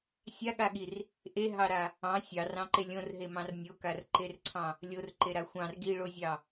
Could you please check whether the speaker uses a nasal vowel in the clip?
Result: yes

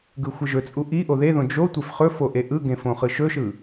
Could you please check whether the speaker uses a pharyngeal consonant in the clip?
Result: no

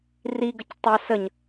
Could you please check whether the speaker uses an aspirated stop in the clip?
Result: no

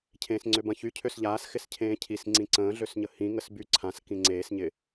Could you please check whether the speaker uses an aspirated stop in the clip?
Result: yes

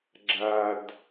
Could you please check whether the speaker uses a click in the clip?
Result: yes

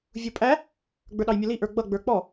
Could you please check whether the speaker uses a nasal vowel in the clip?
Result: no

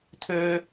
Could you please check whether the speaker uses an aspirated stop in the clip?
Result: yes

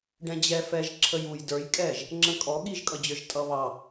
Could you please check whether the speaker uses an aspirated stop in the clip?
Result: yes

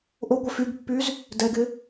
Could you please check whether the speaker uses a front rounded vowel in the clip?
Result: yes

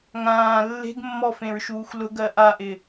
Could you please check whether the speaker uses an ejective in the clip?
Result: no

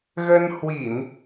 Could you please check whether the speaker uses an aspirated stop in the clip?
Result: no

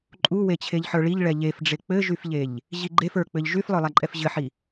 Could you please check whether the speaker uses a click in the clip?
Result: yes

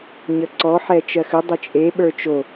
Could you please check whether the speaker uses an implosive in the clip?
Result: yes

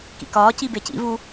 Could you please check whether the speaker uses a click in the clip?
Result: no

